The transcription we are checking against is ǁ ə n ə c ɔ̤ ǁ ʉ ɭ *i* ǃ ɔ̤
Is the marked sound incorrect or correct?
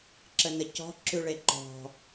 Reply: incorrect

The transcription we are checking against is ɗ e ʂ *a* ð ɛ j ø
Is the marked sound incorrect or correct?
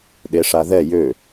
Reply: correct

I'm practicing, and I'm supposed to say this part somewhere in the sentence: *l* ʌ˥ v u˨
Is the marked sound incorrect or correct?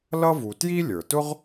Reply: correct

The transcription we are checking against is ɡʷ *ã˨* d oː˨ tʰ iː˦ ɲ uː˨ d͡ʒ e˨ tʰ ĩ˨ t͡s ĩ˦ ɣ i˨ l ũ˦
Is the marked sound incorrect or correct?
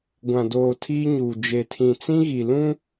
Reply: correct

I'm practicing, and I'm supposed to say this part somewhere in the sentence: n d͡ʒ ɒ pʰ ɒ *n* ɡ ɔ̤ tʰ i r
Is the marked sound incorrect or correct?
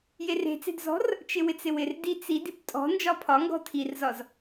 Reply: incorrect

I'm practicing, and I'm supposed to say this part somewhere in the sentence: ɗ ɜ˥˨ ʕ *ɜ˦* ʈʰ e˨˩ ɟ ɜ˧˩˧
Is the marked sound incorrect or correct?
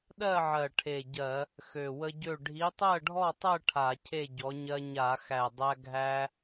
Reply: incorrect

